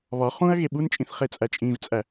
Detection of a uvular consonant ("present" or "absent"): present